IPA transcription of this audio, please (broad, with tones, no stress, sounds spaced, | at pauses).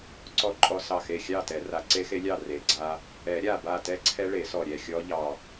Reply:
ǀ ɔ˥˨ ǃʼ ɔ˦˥ s ɑ˧˩ x e˧˩ xʲ ɑ˥˨ t ɛ˨˩˦ r a˨˩˦ ǀ e˦˥ x e˦˥ lʲ ɑ˥˨ r e˨˩˦ ɡ͡ǀ a˦˥ | ɛ˨˩˦ ɾʲ a˧˩ b a˧˩ t ɛ˦˥ ǀʰ ɛ˦˥ ɭ e˨˩˦ s ɔ˧˩ ɾʲ ɛ˧˩ xʲ ɔ˦˥ ʎ ɑ˧˩